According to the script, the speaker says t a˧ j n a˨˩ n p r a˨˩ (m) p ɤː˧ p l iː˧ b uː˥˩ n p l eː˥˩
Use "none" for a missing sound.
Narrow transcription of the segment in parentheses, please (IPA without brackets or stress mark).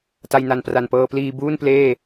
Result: n